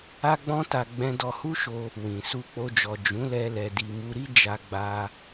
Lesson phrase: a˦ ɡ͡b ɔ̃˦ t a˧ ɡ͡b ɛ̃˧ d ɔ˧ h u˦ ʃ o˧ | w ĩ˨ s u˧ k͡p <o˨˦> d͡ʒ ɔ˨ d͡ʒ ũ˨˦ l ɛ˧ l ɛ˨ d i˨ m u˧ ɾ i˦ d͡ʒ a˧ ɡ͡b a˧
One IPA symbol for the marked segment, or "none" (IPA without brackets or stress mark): o˧